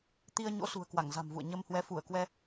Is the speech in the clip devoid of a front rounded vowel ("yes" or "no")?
yes